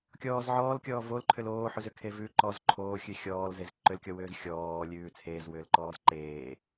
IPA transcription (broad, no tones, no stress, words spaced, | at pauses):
kʲɔːz ʕɔːlkʲɔː volǃʰʏl oːħʉzʏkʰe vʉ ǃɔz ǃʰoːxʲʉ xʲɔːlzez ǃʏlkʲɔwʏːz xʲɔːlʲʉː t͡sʰeːzwʏːlǃɔːz ǃeː